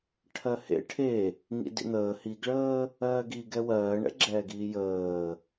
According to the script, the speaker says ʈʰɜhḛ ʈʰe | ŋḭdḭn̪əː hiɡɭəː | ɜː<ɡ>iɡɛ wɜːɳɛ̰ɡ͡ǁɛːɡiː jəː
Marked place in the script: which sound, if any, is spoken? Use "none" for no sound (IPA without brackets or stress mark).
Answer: ɡ